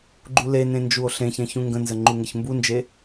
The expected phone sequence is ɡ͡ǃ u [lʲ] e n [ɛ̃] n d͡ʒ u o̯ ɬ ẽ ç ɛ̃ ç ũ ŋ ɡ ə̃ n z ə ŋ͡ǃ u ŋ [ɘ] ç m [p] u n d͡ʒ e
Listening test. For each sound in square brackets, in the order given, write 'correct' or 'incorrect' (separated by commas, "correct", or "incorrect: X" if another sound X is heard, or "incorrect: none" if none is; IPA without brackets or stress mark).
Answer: incorrect: l, incorrect: ẽ, correct, incorrect: b